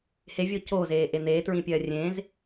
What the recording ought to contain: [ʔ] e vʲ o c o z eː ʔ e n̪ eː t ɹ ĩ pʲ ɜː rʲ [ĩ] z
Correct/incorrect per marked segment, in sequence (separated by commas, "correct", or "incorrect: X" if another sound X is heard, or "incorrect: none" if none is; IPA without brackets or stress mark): incorrect: h, incorrect: ẽ